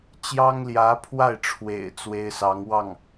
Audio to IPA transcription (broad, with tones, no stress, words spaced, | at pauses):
t͡ɕjɑ˥ŋljä˧˥pʰwa˥˩ɪ̯ʈ͡ʂʰwḛ˨˩ɪ̯ t͡swe˥ɪ̯sɑ˧˥ŋwɑ˥˩ŋ